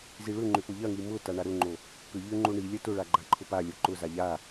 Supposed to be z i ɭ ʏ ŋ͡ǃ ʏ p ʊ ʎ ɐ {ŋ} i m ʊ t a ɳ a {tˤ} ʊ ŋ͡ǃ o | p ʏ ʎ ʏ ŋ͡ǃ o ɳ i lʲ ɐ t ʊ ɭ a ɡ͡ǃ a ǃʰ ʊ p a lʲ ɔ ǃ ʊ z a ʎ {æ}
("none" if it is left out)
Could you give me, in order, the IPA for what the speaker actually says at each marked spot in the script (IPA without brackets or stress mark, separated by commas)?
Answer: ŋ, ɾ, a